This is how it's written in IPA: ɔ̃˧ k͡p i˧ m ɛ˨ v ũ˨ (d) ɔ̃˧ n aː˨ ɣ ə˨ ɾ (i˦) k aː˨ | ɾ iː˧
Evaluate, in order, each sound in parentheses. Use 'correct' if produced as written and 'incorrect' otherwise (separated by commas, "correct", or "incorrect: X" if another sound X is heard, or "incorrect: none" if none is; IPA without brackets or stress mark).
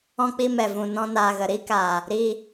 incorrect: n, correct